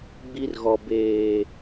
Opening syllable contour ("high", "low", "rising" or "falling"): high